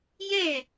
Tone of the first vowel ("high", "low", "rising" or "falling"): falling